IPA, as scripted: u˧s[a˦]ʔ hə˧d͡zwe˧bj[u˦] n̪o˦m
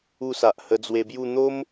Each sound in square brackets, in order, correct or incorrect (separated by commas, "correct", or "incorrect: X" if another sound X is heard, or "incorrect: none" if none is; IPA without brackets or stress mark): incorrect: a˨, incorrect: u˥˧